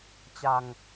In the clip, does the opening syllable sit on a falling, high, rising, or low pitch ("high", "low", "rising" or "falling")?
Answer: low